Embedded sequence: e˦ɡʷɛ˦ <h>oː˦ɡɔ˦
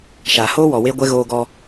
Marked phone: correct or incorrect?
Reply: incorrect